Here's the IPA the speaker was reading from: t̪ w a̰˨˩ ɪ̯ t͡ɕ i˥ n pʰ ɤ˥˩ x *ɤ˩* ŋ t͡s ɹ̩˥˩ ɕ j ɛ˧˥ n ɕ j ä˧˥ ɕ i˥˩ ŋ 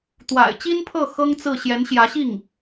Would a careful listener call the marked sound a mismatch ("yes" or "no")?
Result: yes